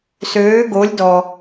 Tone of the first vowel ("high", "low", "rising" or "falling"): rising